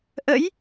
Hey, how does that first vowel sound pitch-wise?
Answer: rising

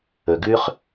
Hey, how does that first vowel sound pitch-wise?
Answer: low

